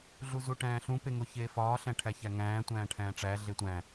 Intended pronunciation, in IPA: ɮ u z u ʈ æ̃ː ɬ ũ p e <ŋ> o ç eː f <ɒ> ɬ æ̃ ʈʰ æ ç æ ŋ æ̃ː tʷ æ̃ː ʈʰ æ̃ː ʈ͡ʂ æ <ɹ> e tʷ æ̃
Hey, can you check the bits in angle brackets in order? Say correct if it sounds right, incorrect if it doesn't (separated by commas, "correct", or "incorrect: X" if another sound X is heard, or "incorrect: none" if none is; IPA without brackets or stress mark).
correct, incorrect: ɒː, incorrect: ɮ